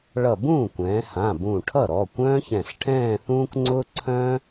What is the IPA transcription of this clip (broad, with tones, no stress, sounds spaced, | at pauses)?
ɭ ʌ˧˩ b ũː˥˩ kʷ ɛ̃ː˩˧ h ã˩˧˩ b ũ˧˩ ʈʰ ʌ˥˩ ɾ ɔ˩˧˩ kʷ œ̃ː˥ ç ɛ̃˧˩ ɬ ʈʰ ɛ̃ː˥˧ θ ũː˥ k ŋ͡ǀ ʊː˥ ǀʰ œ̃ː˥